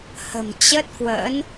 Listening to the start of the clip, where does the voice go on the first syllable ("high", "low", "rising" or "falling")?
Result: low